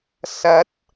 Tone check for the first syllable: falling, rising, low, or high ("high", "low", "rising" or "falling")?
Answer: rising